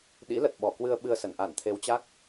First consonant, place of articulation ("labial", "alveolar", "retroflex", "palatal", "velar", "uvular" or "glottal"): alveolar